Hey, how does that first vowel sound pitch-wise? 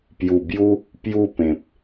low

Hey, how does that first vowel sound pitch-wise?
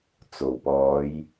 low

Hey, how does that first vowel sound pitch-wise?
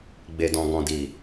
low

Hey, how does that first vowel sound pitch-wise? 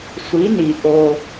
rising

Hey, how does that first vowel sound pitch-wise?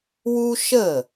high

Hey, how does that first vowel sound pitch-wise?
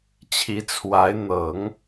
rising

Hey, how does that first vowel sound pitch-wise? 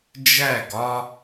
falling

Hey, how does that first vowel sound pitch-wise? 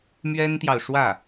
high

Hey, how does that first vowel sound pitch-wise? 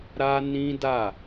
high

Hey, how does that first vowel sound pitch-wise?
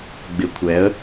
low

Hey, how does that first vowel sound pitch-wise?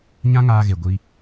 high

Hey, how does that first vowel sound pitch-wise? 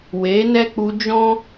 rising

